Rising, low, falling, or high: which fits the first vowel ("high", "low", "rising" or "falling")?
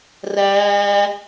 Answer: high